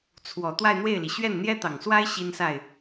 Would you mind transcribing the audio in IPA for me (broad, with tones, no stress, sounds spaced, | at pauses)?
t͡sʰ w ɔ˨˩ t̪ w a˥˧ ɪ̯ n̪ w e˥˩ ɪ̯ l i˩ ɕ ɥ ɛ˥˩ n n̪ j ɛ˥ t̪ ɑ˨˩ ŋ s w a˥ ɪ̯ ɕ i˥ n s a˥˩ ɪ̯